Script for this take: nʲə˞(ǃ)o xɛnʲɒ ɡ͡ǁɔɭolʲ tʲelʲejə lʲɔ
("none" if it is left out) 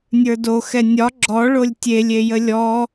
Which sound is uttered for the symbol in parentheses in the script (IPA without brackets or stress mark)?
d